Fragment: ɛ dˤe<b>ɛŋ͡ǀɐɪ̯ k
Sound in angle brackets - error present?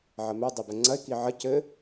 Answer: no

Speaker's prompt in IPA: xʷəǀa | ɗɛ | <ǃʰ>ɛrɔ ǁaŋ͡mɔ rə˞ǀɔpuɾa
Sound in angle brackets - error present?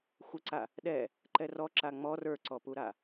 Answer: yes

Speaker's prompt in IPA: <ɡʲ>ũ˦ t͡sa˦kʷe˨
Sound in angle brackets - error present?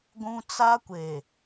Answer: yes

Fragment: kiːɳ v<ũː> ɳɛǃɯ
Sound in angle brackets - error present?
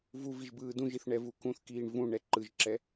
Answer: yes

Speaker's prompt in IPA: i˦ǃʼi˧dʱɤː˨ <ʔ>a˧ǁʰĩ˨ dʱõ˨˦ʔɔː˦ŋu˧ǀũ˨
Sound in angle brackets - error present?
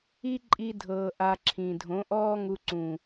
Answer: no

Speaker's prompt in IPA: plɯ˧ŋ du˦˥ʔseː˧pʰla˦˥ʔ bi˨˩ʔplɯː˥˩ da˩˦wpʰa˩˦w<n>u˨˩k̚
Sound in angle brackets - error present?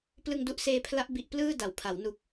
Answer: no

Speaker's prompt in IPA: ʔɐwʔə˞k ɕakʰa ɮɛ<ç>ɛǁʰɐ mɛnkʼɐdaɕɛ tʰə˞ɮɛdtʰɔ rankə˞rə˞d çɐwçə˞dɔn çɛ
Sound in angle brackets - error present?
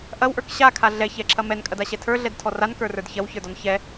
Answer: no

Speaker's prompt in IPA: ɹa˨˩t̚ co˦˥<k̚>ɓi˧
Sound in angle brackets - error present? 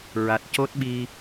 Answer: yes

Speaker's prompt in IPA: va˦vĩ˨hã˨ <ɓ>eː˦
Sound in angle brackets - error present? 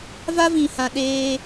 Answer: yes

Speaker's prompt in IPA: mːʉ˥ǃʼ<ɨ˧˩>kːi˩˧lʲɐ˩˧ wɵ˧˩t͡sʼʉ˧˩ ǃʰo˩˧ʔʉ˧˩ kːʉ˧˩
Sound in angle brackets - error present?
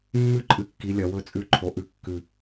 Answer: no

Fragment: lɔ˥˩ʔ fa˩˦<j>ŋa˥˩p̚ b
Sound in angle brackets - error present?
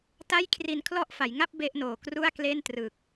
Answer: no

